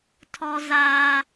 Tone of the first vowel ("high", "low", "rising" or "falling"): high